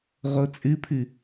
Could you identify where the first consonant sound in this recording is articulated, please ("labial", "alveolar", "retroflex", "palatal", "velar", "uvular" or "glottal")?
uvular